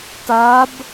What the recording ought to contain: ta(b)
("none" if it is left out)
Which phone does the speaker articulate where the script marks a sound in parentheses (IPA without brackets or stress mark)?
b